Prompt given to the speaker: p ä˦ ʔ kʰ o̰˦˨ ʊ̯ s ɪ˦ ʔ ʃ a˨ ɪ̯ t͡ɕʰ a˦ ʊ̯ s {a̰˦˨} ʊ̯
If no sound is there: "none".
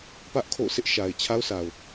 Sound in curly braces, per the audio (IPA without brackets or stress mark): a˨